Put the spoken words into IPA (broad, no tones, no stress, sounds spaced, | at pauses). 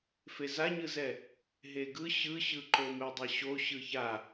f e z a ɲ ɯ z ɛ | ɦ e ɡ ɯ ɕ ɯ ɕ ɯ ǃ o m e dˤ ɛ ɕ o ɕ ɯ ç a